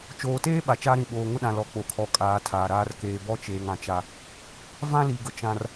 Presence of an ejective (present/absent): present